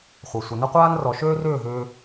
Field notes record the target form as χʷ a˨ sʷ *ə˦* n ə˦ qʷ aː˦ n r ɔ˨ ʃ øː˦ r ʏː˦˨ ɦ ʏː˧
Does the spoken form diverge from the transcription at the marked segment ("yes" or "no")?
yes